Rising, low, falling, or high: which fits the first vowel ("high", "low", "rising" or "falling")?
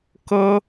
high